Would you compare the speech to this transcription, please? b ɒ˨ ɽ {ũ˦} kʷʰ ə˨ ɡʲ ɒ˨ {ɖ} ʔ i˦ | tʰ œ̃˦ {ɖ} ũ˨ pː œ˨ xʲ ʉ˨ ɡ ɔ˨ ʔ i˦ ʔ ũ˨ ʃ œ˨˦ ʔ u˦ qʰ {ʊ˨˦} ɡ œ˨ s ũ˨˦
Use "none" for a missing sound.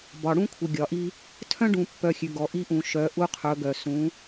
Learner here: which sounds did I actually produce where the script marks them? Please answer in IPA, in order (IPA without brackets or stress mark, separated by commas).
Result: ũ˦, none, ɖ, ɵ˨˦